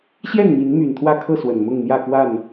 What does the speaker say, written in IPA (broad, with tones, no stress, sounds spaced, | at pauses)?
ɕ j ɛ˥˨ n m i˨˦ n m y˨˩ n t̪ʰ w ä˥˨ kʰ ɤ˥˨ s w ə˨˩ n m ʊ˥˨ ŋ n̪ j ä˥˨ k w a˥˨ n